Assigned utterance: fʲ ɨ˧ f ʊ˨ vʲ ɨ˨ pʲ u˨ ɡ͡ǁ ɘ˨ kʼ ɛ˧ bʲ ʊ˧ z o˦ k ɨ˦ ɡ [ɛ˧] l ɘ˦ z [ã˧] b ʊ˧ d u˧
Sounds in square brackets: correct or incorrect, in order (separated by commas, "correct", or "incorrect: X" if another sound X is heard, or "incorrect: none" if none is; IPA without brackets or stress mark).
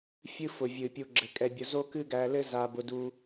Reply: incorrect: æ˧, incorrect: a˧